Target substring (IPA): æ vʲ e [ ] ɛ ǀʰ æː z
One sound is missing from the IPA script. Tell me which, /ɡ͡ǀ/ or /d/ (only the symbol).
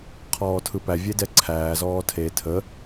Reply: d